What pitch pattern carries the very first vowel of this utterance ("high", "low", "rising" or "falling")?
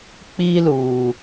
high